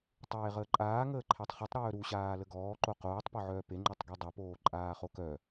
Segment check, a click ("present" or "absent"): present